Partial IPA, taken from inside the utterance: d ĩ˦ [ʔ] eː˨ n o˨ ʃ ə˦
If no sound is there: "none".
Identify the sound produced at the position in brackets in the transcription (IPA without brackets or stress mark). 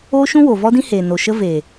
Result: h